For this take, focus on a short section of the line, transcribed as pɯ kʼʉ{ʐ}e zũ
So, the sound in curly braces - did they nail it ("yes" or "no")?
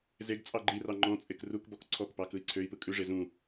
yes